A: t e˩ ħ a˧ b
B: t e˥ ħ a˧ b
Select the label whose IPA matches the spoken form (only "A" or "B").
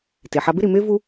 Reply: A